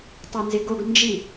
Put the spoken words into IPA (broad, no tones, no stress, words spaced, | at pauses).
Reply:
tˤenzɪɡoɡ nd͡ʒi